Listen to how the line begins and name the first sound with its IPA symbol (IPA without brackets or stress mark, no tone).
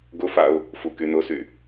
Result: ɡ